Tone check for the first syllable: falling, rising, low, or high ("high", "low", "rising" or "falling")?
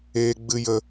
low